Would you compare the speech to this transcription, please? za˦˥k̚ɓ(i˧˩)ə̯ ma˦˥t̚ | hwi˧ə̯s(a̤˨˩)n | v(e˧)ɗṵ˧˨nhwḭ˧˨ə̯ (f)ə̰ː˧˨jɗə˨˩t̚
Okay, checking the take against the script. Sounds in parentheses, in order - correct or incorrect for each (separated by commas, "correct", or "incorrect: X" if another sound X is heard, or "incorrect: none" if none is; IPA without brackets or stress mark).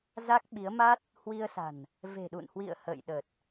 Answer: incorrect: i˨˦, correct, incorrect: e̤˨˩, incorrect: h